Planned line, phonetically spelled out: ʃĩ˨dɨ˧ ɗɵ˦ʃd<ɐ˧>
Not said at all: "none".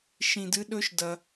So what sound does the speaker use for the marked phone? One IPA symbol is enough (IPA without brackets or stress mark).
ɐ˧